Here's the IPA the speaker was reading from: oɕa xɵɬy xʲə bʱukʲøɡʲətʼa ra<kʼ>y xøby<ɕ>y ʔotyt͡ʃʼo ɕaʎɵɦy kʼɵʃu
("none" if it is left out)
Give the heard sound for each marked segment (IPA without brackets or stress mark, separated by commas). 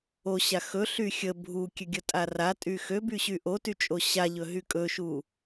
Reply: tʼ, ɕ